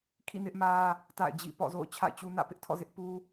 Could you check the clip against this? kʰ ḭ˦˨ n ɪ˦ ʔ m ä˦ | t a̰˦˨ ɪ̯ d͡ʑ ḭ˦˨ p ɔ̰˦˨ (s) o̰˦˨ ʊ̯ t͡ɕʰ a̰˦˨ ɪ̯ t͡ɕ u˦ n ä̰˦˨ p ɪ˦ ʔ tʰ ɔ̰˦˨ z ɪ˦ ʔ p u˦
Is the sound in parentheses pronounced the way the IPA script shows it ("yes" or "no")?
no